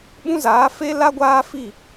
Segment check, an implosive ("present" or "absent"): present